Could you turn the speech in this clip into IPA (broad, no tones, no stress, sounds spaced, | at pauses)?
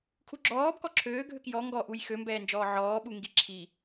kʰ u ɡ͡ǁ ɔː b k ɔ ǁʰ øː ɡʱ ø k j ɔ ŋ ɡ ɔ ʔ u j x ø m b ɛː n d͡ʒ ɔː ʕ ɔː ɓ u ŋ ɡ i ǁʰ i